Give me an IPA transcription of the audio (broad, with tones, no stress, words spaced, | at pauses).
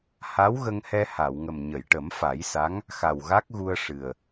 ha˧˥wɣə˧ŋhɛ˧ ha˨˩˨wŋə˨˩m ɲə˨˩˨jʈə˨˩˦mfa˨˩˦jsa˧˥ŋ | xa˨˩wɣa˦˥k̚ɣu˧ə̯ ʂɨ˨˩ə̯